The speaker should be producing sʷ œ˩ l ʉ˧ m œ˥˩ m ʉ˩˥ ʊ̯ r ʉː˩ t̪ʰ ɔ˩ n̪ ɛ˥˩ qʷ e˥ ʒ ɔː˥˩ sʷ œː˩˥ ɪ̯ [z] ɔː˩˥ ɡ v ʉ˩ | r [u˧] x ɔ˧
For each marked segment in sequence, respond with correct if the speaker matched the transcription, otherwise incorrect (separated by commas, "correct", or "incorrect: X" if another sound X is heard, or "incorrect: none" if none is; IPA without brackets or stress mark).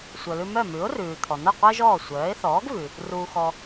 incorrect: θ, incorrect: uː˧